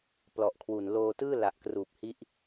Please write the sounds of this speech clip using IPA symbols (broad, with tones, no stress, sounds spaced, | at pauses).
p l ɔ˨˩ ʔ kʰ w u˨˩ n l oː˧ t ɯː˥˩ l a˨˩ ʔ k r uː˨˩ p̚ h i˦˥ ʔ